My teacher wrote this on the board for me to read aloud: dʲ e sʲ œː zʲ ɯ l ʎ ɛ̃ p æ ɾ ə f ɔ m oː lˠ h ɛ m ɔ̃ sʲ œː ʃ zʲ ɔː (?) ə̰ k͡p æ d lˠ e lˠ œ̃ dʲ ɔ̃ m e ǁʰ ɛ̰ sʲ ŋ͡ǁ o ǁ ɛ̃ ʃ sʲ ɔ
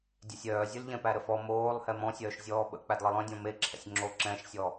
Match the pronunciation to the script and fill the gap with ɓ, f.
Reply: ɓ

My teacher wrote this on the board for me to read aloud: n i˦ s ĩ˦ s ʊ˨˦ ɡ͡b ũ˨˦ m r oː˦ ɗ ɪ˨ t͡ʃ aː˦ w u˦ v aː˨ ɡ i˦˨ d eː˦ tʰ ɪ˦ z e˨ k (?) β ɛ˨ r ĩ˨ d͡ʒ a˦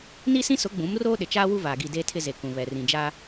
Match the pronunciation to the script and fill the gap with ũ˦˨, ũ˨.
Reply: ũ˨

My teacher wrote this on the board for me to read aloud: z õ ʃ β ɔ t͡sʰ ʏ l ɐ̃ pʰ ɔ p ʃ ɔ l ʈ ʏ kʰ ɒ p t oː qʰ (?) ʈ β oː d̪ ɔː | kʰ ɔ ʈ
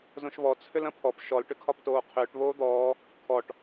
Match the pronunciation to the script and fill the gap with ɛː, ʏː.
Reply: ʏː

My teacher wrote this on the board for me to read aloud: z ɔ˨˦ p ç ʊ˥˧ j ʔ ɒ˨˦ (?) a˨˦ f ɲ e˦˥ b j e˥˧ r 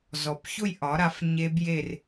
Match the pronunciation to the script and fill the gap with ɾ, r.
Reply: ɾ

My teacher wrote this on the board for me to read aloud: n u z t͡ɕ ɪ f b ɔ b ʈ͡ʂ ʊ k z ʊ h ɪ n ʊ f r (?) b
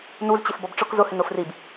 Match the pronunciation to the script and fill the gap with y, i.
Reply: i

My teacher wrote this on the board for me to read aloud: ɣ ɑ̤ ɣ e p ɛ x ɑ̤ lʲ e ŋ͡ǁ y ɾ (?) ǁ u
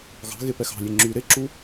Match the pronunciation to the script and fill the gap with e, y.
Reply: e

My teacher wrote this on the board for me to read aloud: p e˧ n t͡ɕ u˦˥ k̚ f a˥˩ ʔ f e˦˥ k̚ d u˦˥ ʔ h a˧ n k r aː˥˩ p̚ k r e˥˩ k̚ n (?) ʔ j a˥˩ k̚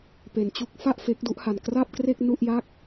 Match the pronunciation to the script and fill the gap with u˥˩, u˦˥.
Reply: u˥˩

